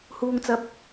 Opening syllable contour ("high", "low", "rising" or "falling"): low